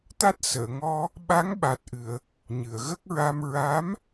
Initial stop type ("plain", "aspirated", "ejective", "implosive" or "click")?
plain